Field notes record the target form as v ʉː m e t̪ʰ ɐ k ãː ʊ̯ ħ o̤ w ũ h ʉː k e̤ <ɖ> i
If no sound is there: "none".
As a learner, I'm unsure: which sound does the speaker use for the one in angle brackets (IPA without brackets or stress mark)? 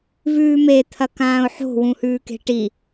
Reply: ʈ